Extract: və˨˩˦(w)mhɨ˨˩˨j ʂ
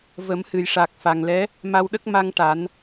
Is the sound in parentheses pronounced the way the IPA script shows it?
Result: no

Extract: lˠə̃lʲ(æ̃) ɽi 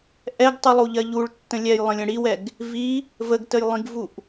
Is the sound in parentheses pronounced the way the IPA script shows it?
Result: no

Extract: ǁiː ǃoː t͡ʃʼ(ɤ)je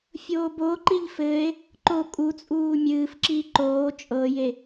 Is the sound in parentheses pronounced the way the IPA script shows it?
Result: yes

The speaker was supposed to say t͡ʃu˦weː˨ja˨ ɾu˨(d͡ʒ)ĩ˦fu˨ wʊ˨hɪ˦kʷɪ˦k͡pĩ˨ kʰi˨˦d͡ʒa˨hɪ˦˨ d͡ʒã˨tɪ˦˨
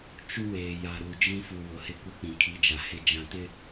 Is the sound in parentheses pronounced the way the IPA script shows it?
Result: yes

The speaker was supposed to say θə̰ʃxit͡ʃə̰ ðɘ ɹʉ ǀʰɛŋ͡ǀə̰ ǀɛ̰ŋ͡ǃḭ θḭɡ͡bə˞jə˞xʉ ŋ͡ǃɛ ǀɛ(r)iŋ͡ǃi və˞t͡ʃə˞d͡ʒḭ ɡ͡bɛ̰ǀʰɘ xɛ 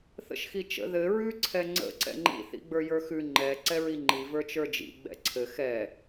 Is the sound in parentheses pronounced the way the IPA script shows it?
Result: no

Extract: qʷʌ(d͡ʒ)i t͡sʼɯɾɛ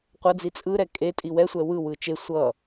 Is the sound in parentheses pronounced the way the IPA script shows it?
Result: no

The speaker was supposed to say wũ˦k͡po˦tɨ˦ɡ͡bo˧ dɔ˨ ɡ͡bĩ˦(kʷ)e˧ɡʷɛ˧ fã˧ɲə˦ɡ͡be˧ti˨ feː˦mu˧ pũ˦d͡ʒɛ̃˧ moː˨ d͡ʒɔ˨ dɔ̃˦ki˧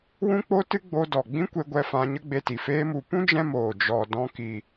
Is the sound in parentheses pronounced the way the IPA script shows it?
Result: yes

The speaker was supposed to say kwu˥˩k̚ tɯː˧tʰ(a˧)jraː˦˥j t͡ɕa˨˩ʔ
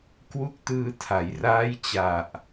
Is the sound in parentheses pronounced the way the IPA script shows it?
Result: no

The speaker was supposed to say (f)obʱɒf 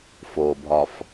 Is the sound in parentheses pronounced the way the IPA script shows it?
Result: yes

